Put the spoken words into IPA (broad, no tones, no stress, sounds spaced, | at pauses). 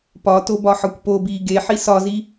p ɒ t o b ɒ ħ ɒ kʷ p o b iː ɡ e ħ i s ɒ z i